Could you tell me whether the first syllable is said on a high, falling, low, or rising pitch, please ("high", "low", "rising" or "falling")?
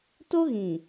high